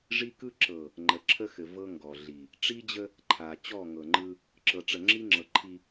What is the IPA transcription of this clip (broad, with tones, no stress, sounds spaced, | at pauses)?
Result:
ʐ i˦ k ɯ˦ ǁ ɤ˨ | ŋ͡ǃ ə˨ ǁʰ ə˦ x ɘ˨ v ɤ˦ ŋ ɡ ɔ˨ ɮ i˨ | ʈ͡ʂ i˦ d͡ʑ ə˦ | ǃʰ a˨ t͡ɕ ɔ˦˨ ŋ ɤ˨ ŋ͡ǃ ɯ˦ | ǁ ɤ˨ ʈ͡ʂ ə˨ ŋ͡ǁ i˦ ŋ͡ǁ ɤ˨ ǃʰ i˦